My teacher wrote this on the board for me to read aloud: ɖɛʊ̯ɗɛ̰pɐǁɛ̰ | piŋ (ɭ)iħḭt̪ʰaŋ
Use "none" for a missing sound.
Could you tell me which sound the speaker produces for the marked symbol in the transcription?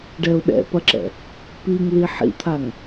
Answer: l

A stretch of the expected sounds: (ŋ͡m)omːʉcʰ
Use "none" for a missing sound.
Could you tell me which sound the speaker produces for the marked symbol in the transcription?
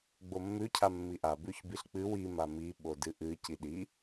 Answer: ɡ͡b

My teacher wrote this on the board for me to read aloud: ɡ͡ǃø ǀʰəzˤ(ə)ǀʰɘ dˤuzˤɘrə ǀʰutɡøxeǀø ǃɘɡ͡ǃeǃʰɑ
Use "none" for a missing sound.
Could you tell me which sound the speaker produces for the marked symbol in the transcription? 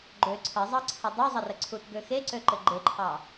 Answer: ɑ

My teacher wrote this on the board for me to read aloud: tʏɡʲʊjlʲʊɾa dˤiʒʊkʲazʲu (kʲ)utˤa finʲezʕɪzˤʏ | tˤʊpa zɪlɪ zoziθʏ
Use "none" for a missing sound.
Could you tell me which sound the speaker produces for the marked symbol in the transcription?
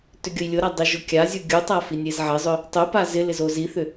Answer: ɡʲ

